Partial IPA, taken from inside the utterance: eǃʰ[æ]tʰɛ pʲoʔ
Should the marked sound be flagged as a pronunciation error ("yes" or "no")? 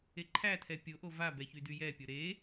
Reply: no